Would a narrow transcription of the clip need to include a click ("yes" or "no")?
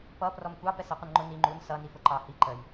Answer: yes